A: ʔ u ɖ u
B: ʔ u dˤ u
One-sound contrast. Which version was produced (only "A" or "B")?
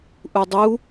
B